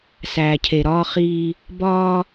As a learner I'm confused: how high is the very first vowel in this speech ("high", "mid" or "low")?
low